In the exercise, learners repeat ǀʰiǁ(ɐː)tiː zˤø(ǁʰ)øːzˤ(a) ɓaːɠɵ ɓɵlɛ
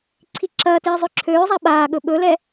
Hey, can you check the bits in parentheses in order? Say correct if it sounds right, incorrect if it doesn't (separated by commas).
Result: correct, correct, correct